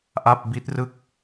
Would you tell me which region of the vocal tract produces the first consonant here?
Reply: throat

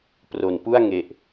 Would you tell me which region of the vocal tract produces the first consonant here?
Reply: lips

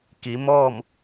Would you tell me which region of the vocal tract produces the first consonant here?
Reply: velum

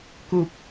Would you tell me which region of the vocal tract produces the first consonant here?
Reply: velum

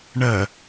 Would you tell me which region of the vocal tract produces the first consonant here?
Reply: retroflex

